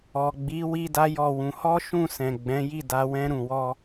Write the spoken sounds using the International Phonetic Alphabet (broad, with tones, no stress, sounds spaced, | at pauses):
ɔ˨ ɡ͡b i˨˦ w i˦ d a˦ j ɔ˦˨ w ũ˧ h ɔ˦ ʃ ũ˦˨ s ɛ̃˨ ɡ͡b ɛ̃˨˦ j i˦˨ d a˧ w ɛ̃˧ ɾ ũ˨ w ɔ˧